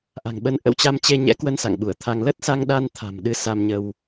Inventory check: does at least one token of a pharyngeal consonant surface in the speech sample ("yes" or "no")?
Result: no